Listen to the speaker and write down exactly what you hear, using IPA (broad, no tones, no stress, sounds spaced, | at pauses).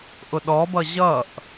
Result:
ʔ ʊ ɗ ɔ b ʌ ʑ ʌ ʔ